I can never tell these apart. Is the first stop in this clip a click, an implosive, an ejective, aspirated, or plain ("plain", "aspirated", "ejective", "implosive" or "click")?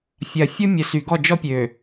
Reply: plain